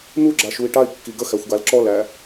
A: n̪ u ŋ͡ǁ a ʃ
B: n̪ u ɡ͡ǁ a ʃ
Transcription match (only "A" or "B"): B